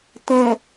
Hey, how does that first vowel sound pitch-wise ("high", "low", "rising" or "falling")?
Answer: low